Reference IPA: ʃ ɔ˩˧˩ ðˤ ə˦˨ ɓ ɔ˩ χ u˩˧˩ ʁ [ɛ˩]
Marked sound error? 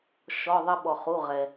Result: no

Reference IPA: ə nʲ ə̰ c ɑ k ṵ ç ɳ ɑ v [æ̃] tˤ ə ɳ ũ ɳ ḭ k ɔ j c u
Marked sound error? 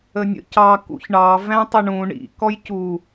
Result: no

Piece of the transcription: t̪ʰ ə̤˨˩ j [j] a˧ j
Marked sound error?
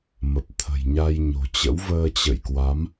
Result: yes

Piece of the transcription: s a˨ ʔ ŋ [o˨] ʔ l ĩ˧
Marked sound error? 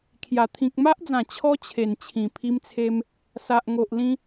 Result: no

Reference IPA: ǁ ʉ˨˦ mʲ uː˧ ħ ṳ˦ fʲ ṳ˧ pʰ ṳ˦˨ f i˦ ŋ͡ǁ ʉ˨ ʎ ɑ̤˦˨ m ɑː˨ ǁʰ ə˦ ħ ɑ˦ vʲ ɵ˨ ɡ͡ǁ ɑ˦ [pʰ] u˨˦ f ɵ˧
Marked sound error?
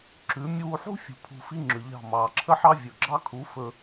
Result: yes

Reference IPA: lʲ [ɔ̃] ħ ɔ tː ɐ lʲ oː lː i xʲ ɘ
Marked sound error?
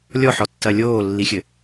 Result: yes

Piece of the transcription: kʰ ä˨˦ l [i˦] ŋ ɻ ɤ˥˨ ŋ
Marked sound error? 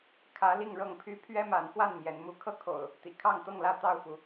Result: yes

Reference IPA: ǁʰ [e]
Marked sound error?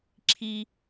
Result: yes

